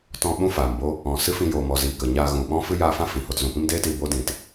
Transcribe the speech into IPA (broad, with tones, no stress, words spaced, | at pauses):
tɔ̃˧ ɓũ˦ faː˨mbo˦ | ɔ̃˨ sɨ˦fĩ˧joː˨mɔ˨ ziː˨kə˨ ɲaː˧ ɣũ˨ɓɔ̃˦ fɨ˦jaː˧fã˦ fĩ˨ho˧tzũ˨ pĩ˦mdeː˦tiː˧ bo˦dĩ˨t